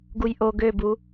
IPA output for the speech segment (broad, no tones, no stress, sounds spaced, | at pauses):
ɡ u j ʔ o ɡ ø b u